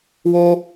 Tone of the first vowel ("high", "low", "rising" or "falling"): high